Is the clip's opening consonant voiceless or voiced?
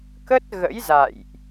voiceless